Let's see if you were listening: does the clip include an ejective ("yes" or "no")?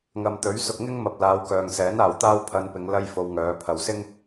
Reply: no